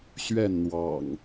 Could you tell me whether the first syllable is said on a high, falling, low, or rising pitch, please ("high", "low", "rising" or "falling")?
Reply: falling